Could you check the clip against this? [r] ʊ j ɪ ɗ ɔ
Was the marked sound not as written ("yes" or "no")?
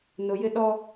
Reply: yes